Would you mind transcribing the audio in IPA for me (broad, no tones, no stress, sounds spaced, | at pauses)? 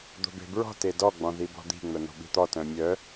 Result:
d̪ o̤ b e̤ b ɹ ɔ̤ t e d ɔ ɡ͡b ɔ̃ ð i b ɔ̤ d̪ i̤ ŋ͡m œ n̪ o̤ ɓ i̤ t̪ ɔ t œ̃ mʲ œ